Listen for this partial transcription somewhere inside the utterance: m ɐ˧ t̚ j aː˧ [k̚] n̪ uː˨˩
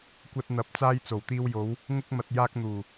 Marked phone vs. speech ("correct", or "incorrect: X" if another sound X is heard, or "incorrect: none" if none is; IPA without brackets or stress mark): correct